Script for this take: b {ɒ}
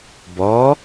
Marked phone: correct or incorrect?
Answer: correct